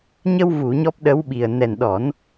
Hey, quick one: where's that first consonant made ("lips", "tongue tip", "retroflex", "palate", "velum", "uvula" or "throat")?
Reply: palate